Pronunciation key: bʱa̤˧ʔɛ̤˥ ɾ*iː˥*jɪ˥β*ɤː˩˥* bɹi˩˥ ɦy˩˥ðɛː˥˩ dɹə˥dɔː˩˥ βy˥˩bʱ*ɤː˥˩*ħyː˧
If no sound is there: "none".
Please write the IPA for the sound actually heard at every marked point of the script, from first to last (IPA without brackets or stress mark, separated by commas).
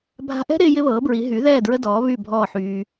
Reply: ɪː˥, ɤː˩˥, ɔː˥˩